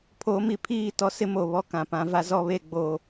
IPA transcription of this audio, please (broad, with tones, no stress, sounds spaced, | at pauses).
pʰ oː˨˦ m i˨ pʰ iː˦˨ t ɔ˦ s ɪ˦ m o˨ β ɔ˦ k ã˨ p ã˦ v a˦ z ɔ˦ β e˦ ɡ͡b oː˦